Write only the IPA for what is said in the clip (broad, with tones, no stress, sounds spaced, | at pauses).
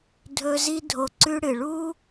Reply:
dʱ ɵ˧ z i˧ dʱ o˧ ǀ ʉ˧ ɽ ɨ˨ ɭ u˦